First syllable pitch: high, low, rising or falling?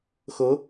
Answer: rising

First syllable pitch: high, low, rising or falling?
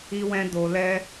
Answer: high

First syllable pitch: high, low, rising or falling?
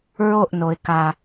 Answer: falling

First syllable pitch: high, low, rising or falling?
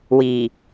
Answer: low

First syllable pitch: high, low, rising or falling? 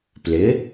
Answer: rising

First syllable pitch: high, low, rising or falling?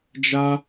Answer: high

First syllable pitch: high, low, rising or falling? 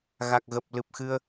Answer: low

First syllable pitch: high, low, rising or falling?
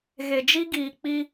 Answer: low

